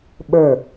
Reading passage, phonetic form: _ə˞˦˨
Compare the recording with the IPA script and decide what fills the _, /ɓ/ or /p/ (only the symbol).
ɓ